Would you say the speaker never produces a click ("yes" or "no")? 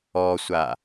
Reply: yes